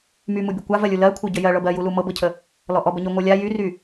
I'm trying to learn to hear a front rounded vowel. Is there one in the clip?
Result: yes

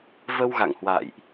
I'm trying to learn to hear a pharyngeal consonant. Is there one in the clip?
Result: no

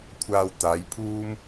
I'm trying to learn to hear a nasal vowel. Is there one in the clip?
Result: no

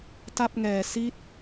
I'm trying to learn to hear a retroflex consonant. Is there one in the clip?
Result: no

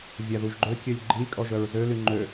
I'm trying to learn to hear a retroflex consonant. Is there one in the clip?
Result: no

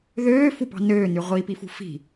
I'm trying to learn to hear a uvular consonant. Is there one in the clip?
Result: yes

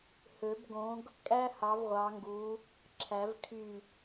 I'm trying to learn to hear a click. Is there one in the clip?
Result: yes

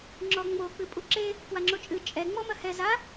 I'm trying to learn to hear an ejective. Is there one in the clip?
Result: yes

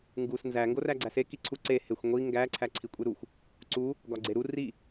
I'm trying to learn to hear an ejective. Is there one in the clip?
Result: yes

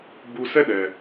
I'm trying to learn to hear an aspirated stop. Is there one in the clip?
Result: no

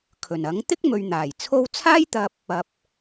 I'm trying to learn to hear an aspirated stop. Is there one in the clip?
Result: yes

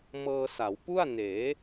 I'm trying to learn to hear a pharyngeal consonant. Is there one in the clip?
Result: no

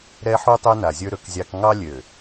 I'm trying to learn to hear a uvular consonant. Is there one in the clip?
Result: no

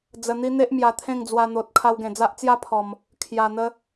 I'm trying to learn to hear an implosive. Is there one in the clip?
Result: no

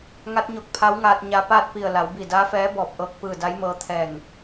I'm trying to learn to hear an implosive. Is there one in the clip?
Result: no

